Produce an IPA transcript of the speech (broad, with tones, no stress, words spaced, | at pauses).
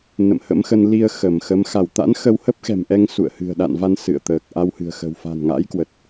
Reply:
nə̰˧˨mhə̰˧˥mxə˧n li˧ə̯ xə˧˩mxə˨˦m xa˧˩wt̪a̰˧˥n xə˧whə˦˥p̚xɛ̤˨˩mʔɛ˧ŋ sṵ˧˨ə̯hɨ̤˨˩ə̯ɗa̰˧˨nva˧n sɨ̰˧˨ə̯ t̪əː˨˩k̚ʔa˧w hɨ̤˨˩ə̯xə̤˨˩w fa̤˨˩nŋa̰˧˥jkwə˨˩t̚